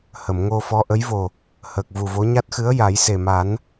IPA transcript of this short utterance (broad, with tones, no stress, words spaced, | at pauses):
hə˨˩˨mŋo˧ fɔ˧˥ʔə˧˥jvo˨˩ | həː˨˩k̚vu˨˩vo˧˥ ɲa˦˥t̚xɨ˧˥ə̯ ja˨˩˦jse˨˩ma˨˩˦n